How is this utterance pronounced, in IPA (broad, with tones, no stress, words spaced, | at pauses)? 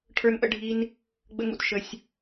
ʈʰə˞˦nʔə̰˦ɖʱi˦n | ɡ͡bə̰˦ŋṵ˧t ʃə˧sʲ